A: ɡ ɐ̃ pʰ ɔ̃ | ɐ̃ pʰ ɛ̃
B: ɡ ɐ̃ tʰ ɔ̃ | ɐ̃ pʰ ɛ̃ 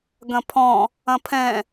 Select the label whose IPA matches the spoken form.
A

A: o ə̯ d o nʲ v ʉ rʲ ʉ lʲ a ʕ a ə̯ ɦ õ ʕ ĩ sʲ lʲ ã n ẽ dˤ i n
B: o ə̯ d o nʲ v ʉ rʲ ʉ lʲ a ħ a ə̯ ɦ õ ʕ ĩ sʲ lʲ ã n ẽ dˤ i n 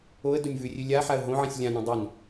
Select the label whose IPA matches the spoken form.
B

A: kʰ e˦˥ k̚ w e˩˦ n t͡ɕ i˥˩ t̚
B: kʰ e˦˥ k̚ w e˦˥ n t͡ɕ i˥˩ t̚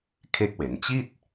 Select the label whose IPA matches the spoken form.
A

